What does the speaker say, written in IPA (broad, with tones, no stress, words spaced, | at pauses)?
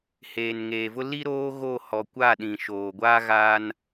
heː˨nŋeː˨vʊ˦ li˦ɾoː˦ ɣo˦˨ hɔ˨kʷa˦˨ɗĩ˨ ʃoː˨ɡʷaː˦ɣaː˦n